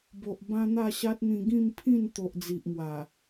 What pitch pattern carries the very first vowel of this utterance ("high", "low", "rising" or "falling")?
low